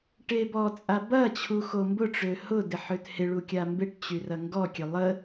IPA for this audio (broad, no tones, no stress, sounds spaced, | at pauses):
ʈ e b ɔ t͡sʼ a b ɐ t͡ɕʰ u x o m b ʊ ʈ͡ʂ ø h ʊ d ɪ ħ ø t h ɪ ɭ u kʲ a m b ɪ ʈ t͡ɕ y r ɐ ŋ ɡ ɔ kʲ ø lˠ ə